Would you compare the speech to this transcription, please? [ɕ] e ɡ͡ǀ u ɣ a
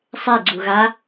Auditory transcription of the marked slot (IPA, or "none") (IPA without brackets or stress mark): sˤ